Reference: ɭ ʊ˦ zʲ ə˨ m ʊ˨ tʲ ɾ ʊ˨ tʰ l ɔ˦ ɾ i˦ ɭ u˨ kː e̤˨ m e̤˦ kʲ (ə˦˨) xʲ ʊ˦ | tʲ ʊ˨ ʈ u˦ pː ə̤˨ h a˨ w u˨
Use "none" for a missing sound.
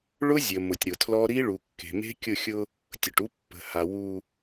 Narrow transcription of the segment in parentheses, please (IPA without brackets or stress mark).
ʊ˦˨